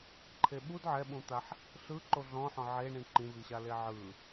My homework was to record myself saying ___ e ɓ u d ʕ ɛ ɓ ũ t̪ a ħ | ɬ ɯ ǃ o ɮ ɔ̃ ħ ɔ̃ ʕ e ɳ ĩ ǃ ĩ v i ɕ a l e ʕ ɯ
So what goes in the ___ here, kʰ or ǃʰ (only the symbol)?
ǃʰ